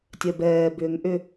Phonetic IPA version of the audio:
tʲ œ b ɛː b ʏː ŋ ʔ ʏ

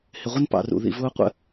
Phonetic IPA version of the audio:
h ɪ˨ ʁʷ ɪ˦ n p ɑ̰˨ r ṵ˨ ð ḭ˨ v ʊː˦ qʷ ə̰˦

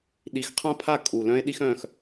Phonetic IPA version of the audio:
ɗ i˨˥ x qʰ ã˥ pʰ a˥˧ kʼ u˨˩ l œ̃˥ e̯ ɗ i˥ x œ̃˥˧ x

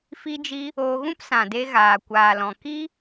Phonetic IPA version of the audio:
f i˧ d͡ʒ i˧ | oː˧ ɣ ũ˦ p s ã˨ d e˧ ɣ aː˨ kʷ aː˨ l ɔ̃˨ k i˦

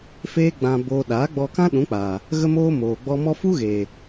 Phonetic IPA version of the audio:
f eː˦ ɡ͡b ã˧ b oː˧ ɗ aː˨˦ ɡ͡b ɔ˧ k ã˦ ɗ ũ˨˦ k͡p aː˨ | ɣ ə˦ m oː˦ m oː˨ ɡ͡b ɔ˧ m ɔ˦ f u˦ ɣ eː˨

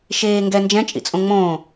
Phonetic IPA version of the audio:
ʃ eː ŋ ɡ ɛ n d͡ʒ ɛ̃ t͡ʃʼ ḭ t͡sʼ õ ŋ͡m õː

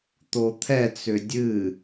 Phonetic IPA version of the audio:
t̪ o t̪ʰ ɛ t͡s ʏ dʲ ɨ

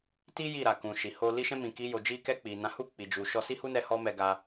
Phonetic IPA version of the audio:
t i˦ j i˦˨ ɾ a˨ k ũ˨ ʃ i˨ h o˧ l i˦ ʃ ɛ̃˦ m ĩ˧ k i˦ j o˧ d͡ʒ i˧ k ɛ˧ k͡p i˨ n ã˨˦ h u˦˨ k͡p i˨ d͡ʒ u˨ ʃ ɔ˧ s i˦ h u˦ n ɛ˧ h ɔ˦ m ɛ˧ ɡ a˧

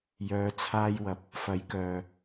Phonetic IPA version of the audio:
j œː˧ t͡sʰ aː˥ j w ɐ˧ p̚ | f ɐ˨˥ j k œː˨

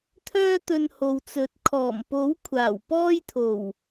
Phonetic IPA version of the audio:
t̪ʰ œː˥ t̪ ɵ˧ n h o˨ w t͡s ɵ˨˥ t̚ kʰ ɔː˨˩ m p o˨˥ w kʷʰ aː˨˩ w p ɔː˥ j t̪ʰ o˨˩ w

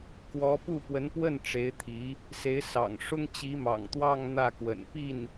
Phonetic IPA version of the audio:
k w ɔ˧˥ p u˥˩ p w ə˧˥ n p w ə˥˩ n ʈ͡ʂ e˧˥ ɪ̯ t̪ʰ i˧˥ | s e˧˥ ɪ̯ s ɑ̰˨˩ ŋ ʂ ʊ˥ ŋ t͡ɕ i˧˥ m ɑ̰˨˩ ŋ t̪ w ɑ˥˧ ŋ n̪ ä˥˩ k w ə̰˨˩ n p i˥˩ n

